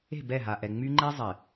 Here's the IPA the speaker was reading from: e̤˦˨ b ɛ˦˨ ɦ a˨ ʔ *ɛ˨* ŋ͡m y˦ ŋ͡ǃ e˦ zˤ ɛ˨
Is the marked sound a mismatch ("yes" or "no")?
no